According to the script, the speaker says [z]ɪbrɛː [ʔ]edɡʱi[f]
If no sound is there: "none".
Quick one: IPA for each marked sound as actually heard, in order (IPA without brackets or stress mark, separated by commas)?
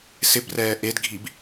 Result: s, ʔ, b